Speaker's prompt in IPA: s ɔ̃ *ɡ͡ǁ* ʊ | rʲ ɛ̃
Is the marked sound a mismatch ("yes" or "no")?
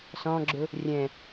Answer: no